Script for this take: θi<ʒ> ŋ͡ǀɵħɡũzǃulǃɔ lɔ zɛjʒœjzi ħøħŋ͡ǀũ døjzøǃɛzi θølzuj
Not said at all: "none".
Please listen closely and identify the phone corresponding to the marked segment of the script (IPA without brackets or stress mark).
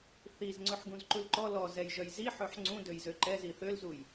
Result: z